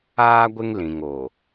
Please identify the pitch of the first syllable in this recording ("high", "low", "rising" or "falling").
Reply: high